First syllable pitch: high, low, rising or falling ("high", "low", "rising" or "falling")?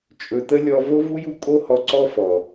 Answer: low